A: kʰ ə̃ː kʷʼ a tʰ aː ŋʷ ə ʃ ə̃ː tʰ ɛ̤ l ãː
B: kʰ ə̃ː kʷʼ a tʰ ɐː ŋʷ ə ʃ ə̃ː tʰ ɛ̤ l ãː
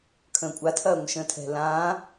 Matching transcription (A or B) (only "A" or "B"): B